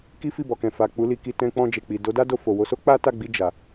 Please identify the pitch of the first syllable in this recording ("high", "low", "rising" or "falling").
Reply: high